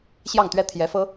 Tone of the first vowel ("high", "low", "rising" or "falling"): falling